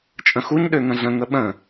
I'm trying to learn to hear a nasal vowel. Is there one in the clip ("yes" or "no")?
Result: yes